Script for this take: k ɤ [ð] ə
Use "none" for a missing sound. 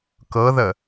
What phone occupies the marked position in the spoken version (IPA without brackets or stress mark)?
ð